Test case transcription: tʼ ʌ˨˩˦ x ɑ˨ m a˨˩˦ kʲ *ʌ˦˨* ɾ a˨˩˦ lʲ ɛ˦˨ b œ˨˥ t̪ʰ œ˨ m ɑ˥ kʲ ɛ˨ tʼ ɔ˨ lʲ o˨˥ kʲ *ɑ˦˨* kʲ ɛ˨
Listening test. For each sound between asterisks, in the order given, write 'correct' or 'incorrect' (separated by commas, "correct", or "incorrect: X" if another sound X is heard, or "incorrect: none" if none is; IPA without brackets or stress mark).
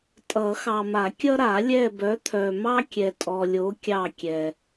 incorrect: ʌ˥, correct